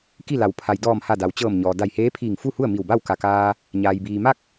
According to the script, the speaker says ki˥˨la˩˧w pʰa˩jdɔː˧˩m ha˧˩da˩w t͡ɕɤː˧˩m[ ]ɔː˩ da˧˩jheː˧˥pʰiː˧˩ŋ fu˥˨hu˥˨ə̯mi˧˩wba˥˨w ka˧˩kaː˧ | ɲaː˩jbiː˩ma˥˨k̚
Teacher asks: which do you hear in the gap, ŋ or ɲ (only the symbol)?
ɲ